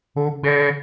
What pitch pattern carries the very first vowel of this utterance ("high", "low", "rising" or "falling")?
high